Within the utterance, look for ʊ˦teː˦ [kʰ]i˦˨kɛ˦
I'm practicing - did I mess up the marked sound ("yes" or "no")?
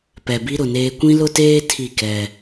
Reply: yes